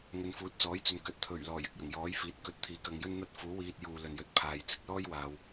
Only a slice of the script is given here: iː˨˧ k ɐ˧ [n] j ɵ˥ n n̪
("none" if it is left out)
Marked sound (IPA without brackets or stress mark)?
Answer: ŋ